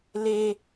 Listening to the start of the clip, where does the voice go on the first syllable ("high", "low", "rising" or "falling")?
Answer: high